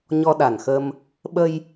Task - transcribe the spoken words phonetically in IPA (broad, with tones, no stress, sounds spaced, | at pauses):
ɲ ɔ˧ ɗ a˨˩ n x ə˧ m | ɓ ə˧ j